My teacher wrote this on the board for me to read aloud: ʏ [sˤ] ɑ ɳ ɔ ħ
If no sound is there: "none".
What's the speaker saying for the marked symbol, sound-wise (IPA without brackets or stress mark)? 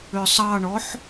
sˤ